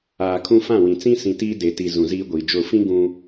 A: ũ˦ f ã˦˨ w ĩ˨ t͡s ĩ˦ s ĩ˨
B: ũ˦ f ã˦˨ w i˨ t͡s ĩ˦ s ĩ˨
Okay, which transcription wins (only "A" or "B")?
A